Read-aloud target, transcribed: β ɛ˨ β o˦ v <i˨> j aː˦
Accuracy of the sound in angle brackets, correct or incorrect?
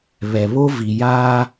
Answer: correct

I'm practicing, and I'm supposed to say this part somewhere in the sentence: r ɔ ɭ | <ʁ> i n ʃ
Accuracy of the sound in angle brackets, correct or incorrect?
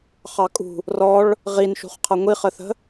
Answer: correct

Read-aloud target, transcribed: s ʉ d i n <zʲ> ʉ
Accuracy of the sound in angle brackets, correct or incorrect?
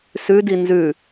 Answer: incorrect: z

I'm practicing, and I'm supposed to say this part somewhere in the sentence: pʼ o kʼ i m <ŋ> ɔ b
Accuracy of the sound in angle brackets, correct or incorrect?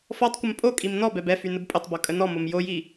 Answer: incorrect: n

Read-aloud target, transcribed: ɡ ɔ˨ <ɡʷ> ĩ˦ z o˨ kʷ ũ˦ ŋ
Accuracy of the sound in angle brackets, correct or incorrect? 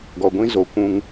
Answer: correct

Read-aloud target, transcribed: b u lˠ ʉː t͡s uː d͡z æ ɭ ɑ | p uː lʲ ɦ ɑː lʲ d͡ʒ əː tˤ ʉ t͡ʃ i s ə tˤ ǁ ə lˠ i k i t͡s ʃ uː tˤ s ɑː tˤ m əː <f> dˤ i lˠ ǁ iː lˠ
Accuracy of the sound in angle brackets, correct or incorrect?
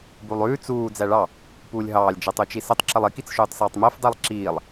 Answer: correct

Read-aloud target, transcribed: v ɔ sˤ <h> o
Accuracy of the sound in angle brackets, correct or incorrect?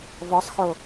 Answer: incorrect: x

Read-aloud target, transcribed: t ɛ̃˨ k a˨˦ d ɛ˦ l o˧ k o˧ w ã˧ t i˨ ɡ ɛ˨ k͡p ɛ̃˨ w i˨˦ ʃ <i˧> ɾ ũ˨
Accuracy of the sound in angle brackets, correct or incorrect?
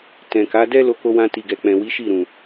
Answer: incorrect: i˦˨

